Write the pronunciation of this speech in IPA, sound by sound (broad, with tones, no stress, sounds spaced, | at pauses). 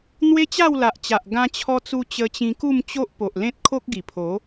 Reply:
n̪ w e˦ t͡ɕ a˥˧ w l a˨ ʔ t͡ɕ a˨ ʔ ɡ ã˧ t͡ɕʰ ɔ˧ t͡s u˧ t͡ɕ ə˧ t͡ɕ ĩ˧ k u˥˧ m t͡ɕ o˦ ʔ p o˨ ʔ l ẽ˦ t̚ kʰ o˦ k̚ ɡ i˨˩ pʰ o˨˦